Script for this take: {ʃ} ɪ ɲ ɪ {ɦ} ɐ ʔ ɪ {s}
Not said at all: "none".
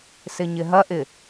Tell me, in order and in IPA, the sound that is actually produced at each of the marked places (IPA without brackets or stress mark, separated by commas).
s, ɦ, none